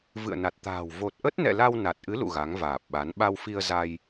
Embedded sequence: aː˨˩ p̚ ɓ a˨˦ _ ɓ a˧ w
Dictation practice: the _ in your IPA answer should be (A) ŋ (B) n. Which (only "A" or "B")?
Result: B